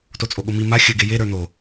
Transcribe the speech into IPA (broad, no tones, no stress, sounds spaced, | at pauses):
t o t͡sʼ o ɠ o m i m a xʲ ɘ ɡ e j e ɾ ə˞ n̪ o